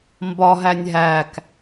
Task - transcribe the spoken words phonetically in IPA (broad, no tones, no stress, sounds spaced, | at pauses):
m b ɒ ɦ æ nʲ ɦ æ k